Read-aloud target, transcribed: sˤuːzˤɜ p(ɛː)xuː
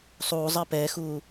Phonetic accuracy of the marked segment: correct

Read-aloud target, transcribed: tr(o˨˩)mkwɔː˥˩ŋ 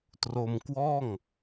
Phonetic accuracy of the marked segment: incorrect: o˧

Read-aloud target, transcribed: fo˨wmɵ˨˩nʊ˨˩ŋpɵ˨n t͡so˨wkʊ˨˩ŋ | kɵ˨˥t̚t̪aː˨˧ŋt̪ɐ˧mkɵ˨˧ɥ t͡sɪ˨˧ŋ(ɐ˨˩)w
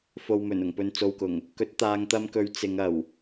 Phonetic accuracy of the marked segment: correct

